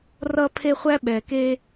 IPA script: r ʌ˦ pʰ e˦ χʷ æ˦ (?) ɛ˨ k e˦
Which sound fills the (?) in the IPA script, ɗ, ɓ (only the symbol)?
ɓ